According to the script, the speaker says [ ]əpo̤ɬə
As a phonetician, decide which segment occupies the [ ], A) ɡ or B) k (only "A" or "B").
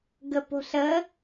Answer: A